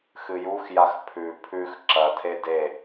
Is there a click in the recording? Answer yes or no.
yes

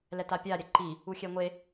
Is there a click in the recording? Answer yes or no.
yes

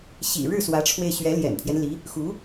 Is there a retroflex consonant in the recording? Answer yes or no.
yes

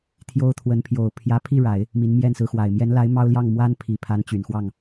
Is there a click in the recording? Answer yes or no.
no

